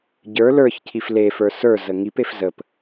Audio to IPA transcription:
ɟ ə˞ l ə˞ ç cʰ i f l e f ə˞ s ə˞ z ə ŋ i p e f z ə p

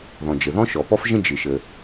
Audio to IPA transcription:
ð ɔ̃˩ d͡ʒ ə˩ ð ɔ̃˥ ʃ ɔ˩ p ɔ˥ f ʒ ə̃˥ d͡ʒ ɪ˩ ʃ ə˩

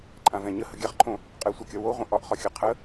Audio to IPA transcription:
ǃʼ ã v ɛ̃ ɲ ə h ə ɡʲ a χ ǃʰ õ | qʼ ɛ sʷ a kʲ ɒ w o ʁʷ ə̃ ʔ ɒ ʔ χ ɒ xʲ ə qʰ ə

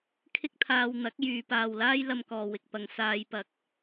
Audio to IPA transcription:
kʰ ɪ˥ k̚ t̪ʰ aː˧ w n̪ ɐ˨˥ k̚ j yː˨ p aː˨ w l aː˥ j l ɐ˧ m k ɔː˨ w ɪ˨ k̚ p ɐ˧ ŋ s aː˧ j p ɐ˧ k̚

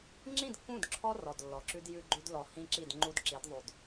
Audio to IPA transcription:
ŋ͡ǁ ĩ˦˨ d kː ũ˦˨ d ǁʰ ɔ˦ r ɔ˨ d lː ɔ˨ ǁ ʉ˦ d j ʉ˦ ɡ͡ǃ ʉ˦ d l ɔ˨ h ĩ˦ ǁ i˦˨ d ŋ͡ǃ u˦ d ǁ i˨˦ d ðˤ ʉ˨ d

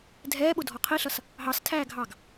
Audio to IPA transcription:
dʱ ɛː ɓ ʊ dʱ ɔ qʰ i ɬ ʌ s | ɦ ɑ s tʰ æː ɡʱ ɑ ɡ

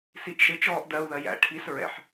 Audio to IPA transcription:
s i ʔ ʃ ɪ t͡ʃ ɔː ʔ d ɜ u̯ ð ɜ j æ̰ ʈʰ i s ɹ ɛ̰ ħ

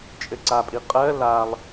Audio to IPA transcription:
t͡ʃʼ ɘ ǀ a pʼ i qʼ ɜ l a lˠ

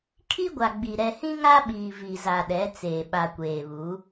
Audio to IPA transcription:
kʰ i˦ ɡʷ a˨ ɡ͡b i˨ ɾ ɛ˨ h ĩ˦ ŋ a˦ ɓ iː˨ v i˨ z a˨ ɗ ɛ˨˦ t͡s eː˨ ɓ a˨ kʷ eː˨ β uː˨˦

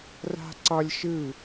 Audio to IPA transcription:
r a̤ ǀ ɒ lʲ ʃ ɯ

